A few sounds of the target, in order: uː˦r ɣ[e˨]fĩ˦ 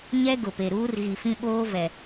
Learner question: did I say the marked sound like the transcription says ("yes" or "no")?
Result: no